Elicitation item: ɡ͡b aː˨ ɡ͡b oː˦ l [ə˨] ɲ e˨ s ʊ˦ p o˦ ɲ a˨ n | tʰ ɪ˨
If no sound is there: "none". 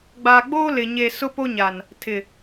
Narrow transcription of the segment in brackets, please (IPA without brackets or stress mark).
ɪ˨